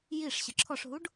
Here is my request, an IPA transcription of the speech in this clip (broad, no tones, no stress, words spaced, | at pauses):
jiʂ ɕəǁʰɔʂɦuɖ